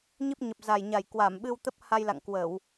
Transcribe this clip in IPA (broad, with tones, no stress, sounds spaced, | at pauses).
ɲ i˦˥ p̚ ɲ ə˨˩ p̚ z a˨˩ j ɲ a˨˩ j k w a˧˩ m ɓ ɨ˧ w t̪ ə˦˥ p̚ h a˧ j l a̰˧˨ ŋ k w ə˧˩˨ w